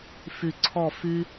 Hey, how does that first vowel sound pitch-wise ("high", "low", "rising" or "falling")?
low